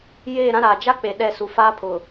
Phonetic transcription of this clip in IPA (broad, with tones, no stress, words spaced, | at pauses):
jeː˦˨ɾã˦ɾaː˨ d͡ʒa˦ k͡pe˨ɗɛ˦˨su˨ faː˦pʰʊ˨